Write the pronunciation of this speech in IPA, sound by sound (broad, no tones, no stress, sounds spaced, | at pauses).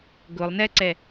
ɡ ʊ lˠ n ɛ ǀ ɛ